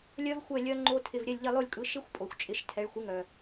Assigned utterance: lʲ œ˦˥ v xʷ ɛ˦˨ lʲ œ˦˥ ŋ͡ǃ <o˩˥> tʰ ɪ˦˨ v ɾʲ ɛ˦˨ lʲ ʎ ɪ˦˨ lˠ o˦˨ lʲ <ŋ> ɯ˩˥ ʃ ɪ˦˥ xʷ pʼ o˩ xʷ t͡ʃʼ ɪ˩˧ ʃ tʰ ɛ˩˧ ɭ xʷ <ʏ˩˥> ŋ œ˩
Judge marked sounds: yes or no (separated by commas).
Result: no, no, no